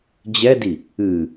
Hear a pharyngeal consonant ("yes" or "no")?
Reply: no